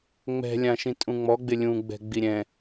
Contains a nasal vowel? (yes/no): yes